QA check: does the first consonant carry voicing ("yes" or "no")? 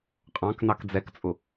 no